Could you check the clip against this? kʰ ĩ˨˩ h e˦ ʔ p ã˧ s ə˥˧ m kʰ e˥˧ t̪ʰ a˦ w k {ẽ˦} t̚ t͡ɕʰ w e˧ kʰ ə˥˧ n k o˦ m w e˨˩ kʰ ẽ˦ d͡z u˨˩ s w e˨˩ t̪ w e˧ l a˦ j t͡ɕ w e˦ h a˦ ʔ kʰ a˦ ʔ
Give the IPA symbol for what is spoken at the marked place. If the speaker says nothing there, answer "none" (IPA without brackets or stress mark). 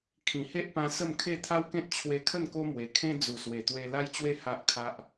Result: ẽ˦